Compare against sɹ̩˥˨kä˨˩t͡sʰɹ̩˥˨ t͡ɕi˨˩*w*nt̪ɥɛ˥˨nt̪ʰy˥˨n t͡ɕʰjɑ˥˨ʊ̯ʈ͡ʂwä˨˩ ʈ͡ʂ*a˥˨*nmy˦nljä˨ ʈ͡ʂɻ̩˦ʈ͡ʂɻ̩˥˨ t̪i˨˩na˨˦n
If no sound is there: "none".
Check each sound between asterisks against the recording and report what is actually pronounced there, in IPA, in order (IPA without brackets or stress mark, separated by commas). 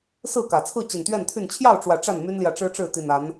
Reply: none, a˥˨